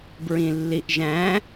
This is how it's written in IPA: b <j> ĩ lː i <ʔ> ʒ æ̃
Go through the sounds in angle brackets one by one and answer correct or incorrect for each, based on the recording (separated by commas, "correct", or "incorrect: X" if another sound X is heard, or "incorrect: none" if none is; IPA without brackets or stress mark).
incorrect: ɹ, correct